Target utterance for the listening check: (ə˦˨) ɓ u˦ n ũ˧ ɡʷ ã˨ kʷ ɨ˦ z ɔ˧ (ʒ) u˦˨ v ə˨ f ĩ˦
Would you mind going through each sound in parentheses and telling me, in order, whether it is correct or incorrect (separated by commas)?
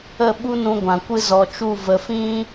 correct, incorrect